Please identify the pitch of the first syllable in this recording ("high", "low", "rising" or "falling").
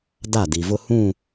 falling